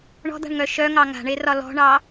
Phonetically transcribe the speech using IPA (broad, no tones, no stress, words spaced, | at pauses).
ɳɔ̤d̪a̤ɳŋœ ʃœŋɑ ŋa̤ɳerɒ lɔ̤ɳɑ